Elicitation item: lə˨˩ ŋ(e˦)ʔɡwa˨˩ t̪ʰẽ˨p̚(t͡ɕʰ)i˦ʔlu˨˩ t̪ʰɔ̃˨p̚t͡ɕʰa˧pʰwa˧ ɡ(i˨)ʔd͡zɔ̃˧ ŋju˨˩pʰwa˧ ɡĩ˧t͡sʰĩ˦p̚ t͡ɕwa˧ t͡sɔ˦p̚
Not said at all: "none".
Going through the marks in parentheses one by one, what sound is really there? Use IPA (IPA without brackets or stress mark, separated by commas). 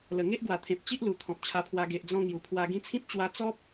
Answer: e˦, t͡ɕ, e˨